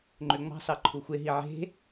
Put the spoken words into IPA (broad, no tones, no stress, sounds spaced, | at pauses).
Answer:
ŋ͡ǃ ø ŋ͡m ɑ̤ s ɑ ǃʰ u xʷ e ɦ i ʕ e̤